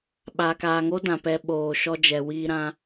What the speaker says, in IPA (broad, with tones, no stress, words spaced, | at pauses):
ɓaː˨kaː˨ŋo˦ dã˨pɛ˧ ɓoː˨ ʃɔ˧d͡ʒɛ˨wiː˧ɾã˧